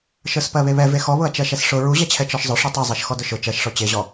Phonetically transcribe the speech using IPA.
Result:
ʃ ə˞ s p ɜ β e β ɛ v e x ɔ β ʊ ɐ̯ t͡ʃ ɜ ʃ ɛ s ʂ ʊ ɹ u ʑ ɛ t͡ɕʰ ɛ t͡ʃ ɔ ʃ zˤ ʊ ʂ u tˤ u zˤ ɜ ʃ x ɔ d ʊ ʃ ʊ t͡ʃ ɜ ʃ ʂ ɔ t͡ɕ e ʑ ɔ

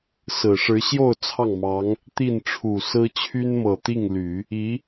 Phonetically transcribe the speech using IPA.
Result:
s ɹ̩˨˩ ʂ ɻ̩˧˥ ɕ j o˥˧ ʊ̯ t͡sʰ ɑ˥˩ ŋ m ɑ˧˥ ŋ | t̪ i˥˩ n ʈ͡ʂʰ u˨˩ s ɹ̩˥ t͡ɕʰ y˥ n m ɤ˨˩ t̪ i˥˩ ŋ l y˨˩˦ | i˧˥

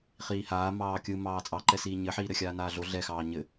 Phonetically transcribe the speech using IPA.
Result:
χ iː h aː m ɑː kʲ ɯ m ɑː t͡sʼ ɑ ǃ ɛ s iː ɲ ɘ ħ iː ɾ ɘ xʲ aː n aː ɮ o ɮ ɛ x ɑː ɲ ɘ

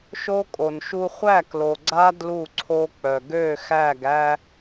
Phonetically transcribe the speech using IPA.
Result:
ʃ o˦ kʼ o˨ n ʃ u˦ χʷ æ˦˨ k l o˨ ɡ͡ǀ a˦ d l u˦˨ ǀʰ o˦ k͡p œ˨ ɡ ø˦˨ x æ˦˨ ɡ æ˦

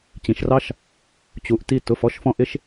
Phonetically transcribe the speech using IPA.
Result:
t͡ɕ ĩ˩ ʃ r ɑ˥ ʃ | t͡ɕ u˩˧ ʔ t i˧ t ʊ˩˧ f ɔ˩˧ ʃ f ɔ̃˧ ʔ ɪ˧ ʃ

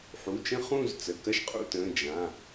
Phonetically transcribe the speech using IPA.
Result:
ħ u˩˧˩ t͡ʃ ə̃˥˧ χ ũ˥˧ z t͡s ə˩˧˩ k ɐ˥˧ ʃ qʼ ṵ˥˧ t ə̃ː˩˧˩ d͡ʒ ã˩˧˩

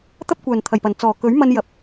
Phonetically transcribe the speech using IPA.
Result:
t̪ ɐ˥ p̚ kʷ œː˨˩ n t̪ʰ ɐ˨˩ j p ɐ˨˩ n t͡s ɔː˨˩ k ɵ˨˥ ɥ m ɐ˧ n j ɐ˨ p̚

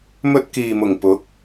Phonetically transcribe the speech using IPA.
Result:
m ɵ˧ t̚ k iː˨ m ʊ˨˩ ŋ p ʊ˨˥ k̚

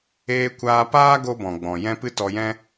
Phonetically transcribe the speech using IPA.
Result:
eː˧ kʷ aː˧ p aː˦ ɡ o˦ b ɔ̃˨ ɡ͡b ɔ̃˨ j ɛ̃˦ p ɨ˦ t ɔ˧ j ɛ̃˦

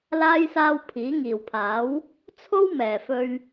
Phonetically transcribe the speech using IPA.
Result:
l aː˥ j s aː˧ w pʰ iː˨˥ ŋ iː˨˩ w pʰ aː˨˥ w | t͡sʰ o˥ w m ɛː˨˩ f ɵ˧ ɥ

